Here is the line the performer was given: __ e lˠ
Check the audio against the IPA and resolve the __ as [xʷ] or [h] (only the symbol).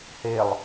h